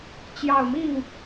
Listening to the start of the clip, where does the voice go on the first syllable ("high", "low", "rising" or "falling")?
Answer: low